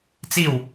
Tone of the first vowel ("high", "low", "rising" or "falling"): falling